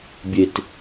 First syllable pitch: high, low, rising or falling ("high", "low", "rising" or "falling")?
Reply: low